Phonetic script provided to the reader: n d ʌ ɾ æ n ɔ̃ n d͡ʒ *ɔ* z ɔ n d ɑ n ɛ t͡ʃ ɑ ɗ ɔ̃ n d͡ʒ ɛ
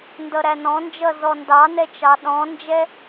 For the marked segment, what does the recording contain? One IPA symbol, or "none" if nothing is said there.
ʌ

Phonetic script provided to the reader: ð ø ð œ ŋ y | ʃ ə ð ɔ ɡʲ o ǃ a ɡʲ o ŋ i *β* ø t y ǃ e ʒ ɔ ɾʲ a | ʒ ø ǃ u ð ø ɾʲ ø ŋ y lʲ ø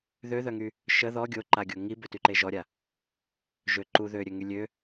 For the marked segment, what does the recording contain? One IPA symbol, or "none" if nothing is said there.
b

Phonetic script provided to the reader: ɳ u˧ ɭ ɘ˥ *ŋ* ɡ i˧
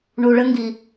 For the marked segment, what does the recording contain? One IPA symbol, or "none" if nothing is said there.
ŋ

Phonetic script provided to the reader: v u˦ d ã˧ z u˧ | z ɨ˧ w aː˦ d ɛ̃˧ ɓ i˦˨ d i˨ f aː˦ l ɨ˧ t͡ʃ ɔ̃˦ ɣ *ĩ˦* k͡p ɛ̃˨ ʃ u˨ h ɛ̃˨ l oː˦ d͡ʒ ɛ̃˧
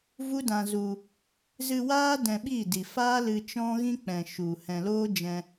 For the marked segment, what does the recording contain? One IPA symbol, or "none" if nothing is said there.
ĩ˦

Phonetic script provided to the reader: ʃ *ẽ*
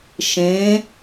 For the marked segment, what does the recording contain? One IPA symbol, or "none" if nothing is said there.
ẽ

